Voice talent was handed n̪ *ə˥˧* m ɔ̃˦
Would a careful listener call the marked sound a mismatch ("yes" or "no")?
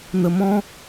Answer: yes